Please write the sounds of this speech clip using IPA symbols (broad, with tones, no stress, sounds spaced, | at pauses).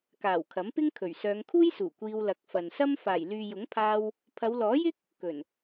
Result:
k aː˨˩ w kʰ ɐ˨˥ m p ɪ˥ ŋ kʰ ɵ˨˩ ɥ s œː˨˧ ŋ kʰ uː˥ j s uː˨˩ kʷ iː˧ w l ɐ˨˥ k̚ f ɐ˨ n s ɐ˥ m f aː˨˩ j l yː˨ j ʊ˨˥ ŋ pʰ aː˧ w | pʰ ɐ˨˧ w l ɔː˨˥ j ɪ˥ k̚ | k ɵ˨˩ n